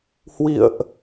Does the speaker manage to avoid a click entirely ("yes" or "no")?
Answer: yes